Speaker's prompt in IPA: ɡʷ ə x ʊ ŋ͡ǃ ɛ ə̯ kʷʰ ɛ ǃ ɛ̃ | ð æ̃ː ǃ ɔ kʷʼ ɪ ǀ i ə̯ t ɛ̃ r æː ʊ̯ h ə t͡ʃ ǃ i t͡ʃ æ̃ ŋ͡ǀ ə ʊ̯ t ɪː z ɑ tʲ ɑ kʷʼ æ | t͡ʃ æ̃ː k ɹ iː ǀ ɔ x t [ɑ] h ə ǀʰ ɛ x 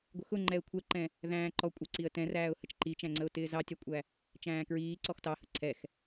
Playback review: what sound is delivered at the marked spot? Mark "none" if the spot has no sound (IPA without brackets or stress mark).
ɑ